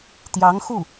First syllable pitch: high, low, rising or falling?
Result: rising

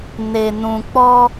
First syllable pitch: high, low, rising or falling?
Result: low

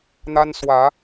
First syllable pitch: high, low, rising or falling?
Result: high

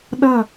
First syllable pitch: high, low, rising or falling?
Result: falling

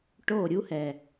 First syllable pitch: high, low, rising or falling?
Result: falling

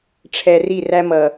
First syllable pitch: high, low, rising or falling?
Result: low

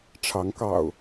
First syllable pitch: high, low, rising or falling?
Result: rising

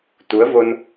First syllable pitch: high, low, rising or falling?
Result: rising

